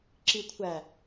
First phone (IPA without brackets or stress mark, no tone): ǁ